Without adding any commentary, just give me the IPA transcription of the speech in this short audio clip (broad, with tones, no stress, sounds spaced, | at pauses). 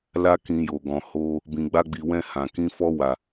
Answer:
l a˦ k ĩ˧ j o˨ ɡ ɔ̃˨ h o˧ | b ĩ˨ ɡ͡b a˧ ɡ͡b i˨ w ɛ̃˧ h ã˨ k ĩ˧ f ɔ˧ w a˨